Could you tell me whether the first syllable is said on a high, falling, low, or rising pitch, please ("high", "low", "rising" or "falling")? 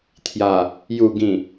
low